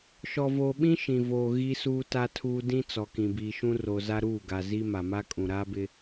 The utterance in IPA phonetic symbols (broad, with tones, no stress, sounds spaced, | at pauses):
ʃ ɔ˨ v oː˨ ɓ ĩ˦ ʃ ĩ˨ v oː˨ ɣ i˦ s uː˦ t a˦ tʰ uː˦ d ĩ˦ t͡s ɔ˨ k ĩ˨ b iː˨ ʃ ũ˦ r o˨ z a˦ ɾ uː˦˨ ɡ a˨ z i˦ m a˨ m a˦ kʼ ũ˨ ɾ aː˦ b ɪ˦